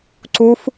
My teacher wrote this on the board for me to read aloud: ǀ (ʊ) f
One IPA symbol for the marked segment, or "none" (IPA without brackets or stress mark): u